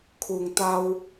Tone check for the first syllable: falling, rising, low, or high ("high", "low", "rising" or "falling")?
low